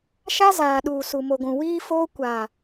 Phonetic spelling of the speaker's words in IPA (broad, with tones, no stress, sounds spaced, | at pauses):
ʃ a˦ z aː˨ ɗ uː˨ s u˨ m o˨ ɡʷ ũ˨ w iː˦ f oː˦ kʷ a˨